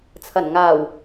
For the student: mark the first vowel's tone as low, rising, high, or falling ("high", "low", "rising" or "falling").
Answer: low